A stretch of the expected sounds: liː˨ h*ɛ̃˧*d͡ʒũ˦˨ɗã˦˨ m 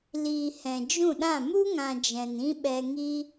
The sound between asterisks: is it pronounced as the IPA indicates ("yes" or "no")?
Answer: no